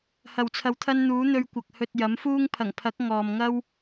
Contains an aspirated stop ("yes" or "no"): yes